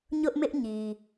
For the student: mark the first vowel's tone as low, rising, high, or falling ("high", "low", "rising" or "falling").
high